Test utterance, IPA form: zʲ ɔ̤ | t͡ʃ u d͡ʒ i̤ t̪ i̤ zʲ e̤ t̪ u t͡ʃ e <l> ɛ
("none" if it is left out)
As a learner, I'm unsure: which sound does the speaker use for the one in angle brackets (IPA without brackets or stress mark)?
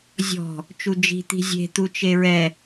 ɹ